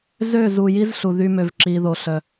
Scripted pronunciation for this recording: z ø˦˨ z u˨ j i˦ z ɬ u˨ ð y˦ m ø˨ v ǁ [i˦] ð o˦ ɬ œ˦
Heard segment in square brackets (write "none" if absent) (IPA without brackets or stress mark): i˦